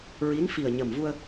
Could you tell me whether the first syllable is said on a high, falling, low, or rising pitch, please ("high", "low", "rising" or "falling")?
rising